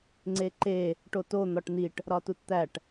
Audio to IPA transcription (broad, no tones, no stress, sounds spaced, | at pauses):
ŋ͡ǀ e ǃ e | ʈ o t o n̪ ɒ ʈ n̪ i ʈ | ɾ ɒ t u t t̪ æ ʈ